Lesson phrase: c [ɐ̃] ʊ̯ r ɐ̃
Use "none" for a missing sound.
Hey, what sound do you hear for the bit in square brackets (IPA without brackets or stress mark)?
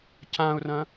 ã